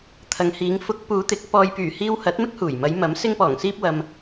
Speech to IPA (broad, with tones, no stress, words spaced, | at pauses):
t̪ʰɐ˨ŋhiː˨˧ŋ fʊ˨˥k̚ puː˨˧t̪ɪ˨˥k̚ pɔː˨jpyː˨˩hiː˧w hɐ˨˥t̚mɪ˥k̚huː˨˩jmɐ˨˧j mɐ˨˥m sɪ˧ŋpɔː˨˩ŋsiː˧p̚wɐ˨m